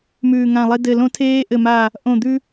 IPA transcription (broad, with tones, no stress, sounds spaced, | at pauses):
m ʉː˨˩ ŋ ã˨˩ lˠ e˧ d ɘ˨˩ l õ˧ tʰ eː˧ ʔ ɘ˨˩ m a˨˩ | ʔ õ˨˩ d̪ ʉ˧